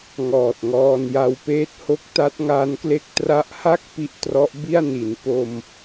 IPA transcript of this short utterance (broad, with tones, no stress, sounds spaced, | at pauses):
ŋ ɔː˨˩ t̚ ŋ ɔː˧ n j a˧ w p eː˥˩ t̚ h o˥˩ k̚ t a˦˥ t̚ ŋ aː˦˥ n k l e˦˥ k̚ t r a˦˥ ʔ h a˥˩ k̚ p i˥˩ ʔ t r ɔ˦˥ ʔ b i˥˩ a̯ n i˩˦ n p o˧ m